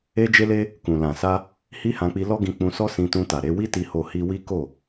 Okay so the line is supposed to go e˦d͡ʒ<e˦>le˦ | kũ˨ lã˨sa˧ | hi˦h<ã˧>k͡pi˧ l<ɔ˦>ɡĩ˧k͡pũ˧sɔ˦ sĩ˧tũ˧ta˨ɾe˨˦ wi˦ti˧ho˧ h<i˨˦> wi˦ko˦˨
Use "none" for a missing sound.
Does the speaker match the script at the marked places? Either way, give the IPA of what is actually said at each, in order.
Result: e˦, ã˧, ɔ˦, i˦

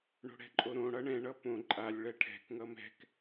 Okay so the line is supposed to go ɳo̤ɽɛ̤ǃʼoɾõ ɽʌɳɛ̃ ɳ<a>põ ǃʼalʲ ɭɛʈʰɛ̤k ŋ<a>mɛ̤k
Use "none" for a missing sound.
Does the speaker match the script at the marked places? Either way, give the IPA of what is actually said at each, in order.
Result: ʌ, ʌ

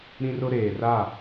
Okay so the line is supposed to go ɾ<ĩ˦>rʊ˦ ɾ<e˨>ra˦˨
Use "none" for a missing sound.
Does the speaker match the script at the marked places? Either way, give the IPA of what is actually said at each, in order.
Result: ĩ˦, eː˨

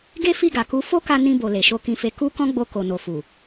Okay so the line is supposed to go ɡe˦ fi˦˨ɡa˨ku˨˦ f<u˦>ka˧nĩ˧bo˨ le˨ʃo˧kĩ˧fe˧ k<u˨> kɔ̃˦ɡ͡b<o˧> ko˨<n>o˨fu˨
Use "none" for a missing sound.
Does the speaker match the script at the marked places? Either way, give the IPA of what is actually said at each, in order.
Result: o˦, u˧, o˧, n

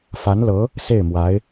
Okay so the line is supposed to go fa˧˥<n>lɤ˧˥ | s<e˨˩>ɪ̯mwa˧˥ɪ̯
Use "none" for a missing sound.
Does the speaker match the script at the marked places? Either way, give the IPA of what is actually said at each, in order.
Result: n, e˥˩

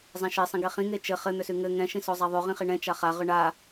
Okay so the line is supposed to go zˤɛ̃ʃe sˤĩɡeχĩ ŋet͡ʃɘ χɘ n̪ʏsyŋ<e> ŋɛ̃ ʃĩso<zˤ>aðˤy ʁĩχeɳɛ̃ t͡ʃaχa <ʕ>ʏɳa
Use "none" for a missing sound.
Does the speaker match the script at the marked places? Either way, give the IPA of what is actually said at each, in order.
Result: ɘ, zˤ, ʁ

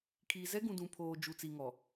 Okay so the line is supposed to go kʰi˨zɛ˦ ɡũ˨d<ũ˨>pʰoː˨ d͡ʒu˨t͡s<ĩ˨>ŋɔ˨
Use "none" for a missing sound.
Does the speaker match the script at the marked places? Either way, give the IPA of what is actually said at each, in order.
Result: ũ˨, i˨

